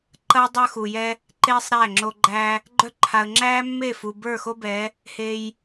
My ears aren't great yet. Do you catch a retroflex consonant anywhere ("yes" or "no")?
no